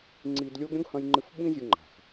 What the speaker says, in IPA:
ŋ͡ǀ i˧ d lʲ o˥ ɡ ɾʲ õ˥ ɡ h ɐ̃˧ j ŋ͡ǃ ɨ˧ f ɓ ĩ˥ zʲ u˧ ŋ͡ǃ a̤˩ x

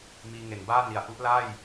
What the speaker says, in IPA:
m iː˧ ŋ e˨˩ n b aː˥˩ n i˨˩ a̯ ʔ u˦˥ ʔ l a˥˩ j

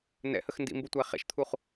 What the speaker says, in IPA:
n ɛ̰ h ə x n d ḭ m b u tʷ æ χ ɛ̰ ʃ t̪ʰ u χ

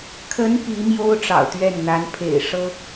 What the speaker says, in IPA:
kʰ ə˧˥ n p i˧˥ m j o˥ ʊ̯ ʈ͡ʂ ɑ̰˨˩ ʊ̯ t̪ ɥ ɛ˥˩ n n̪ a˧˥ n pʰ ḛ˨˩ ɪ̯ ʂ ɤ˥

